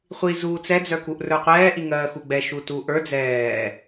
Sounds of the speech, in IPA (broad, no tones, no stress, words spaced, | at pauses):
χʷi zuːt͡sɛ d͡zœkuʔrə˞qʷɛː ʔiŋɜːxuɡ͡bɛ ʃutuʔə˞ d͡zɛː